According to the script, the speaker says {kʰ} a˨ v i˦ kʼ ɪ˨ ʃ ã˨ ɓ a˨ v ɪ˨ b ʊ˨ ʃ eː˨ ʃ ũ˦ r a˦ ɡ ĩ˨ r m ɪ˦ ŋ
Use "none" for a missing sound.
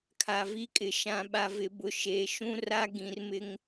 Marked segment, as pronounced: kʰ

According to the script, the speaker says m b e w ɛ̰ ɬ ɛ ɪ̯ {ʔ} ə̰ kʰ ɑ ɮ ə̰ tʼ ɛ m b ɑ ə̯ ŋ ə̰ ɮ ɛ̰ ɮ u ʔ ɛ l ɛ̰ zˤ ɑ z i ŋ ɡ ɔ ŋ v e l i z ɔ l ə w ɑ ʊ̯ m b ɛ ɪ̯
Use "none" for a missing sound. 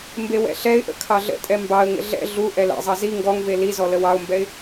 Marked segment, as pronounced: ʔ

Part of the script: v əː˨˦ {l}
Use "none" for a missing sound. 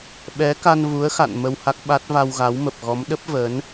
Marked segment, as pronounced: n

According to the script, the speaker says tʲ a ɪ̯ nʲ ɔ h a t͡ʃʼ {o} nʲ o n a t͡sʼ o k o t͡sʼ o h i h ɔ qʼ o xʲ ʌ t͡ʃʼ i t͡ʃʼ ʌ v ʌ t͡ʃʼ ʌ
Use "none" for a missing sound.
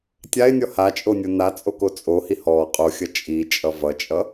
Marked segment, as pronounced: o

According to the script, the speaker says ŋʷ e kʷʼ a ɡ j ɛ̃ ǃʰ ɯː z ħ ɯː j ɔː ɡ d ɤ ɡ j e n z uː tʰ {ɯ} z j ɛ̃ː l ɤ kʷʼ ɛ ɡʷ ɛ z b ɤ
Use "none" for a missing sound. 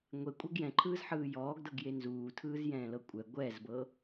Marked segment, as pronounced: ɯː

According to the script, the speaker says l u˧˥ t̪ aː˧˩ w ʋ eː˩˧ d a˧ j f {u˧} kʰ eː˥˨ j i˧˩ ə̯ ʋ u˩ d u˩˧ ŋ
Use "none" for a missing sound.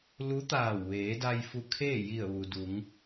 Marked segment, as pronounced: u˧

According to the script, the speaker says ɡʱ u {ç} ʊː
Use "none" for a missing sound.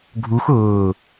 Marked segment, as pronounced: x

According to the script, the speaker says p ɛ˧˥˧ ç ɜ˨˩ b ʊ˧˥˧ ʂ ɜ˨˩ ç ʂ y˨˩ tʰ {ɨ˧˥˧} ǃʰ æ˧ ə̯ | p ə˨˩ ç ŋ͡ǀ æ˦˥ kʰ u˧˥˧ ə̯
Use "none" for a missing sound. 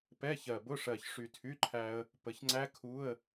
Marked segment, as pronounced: y˧˥˧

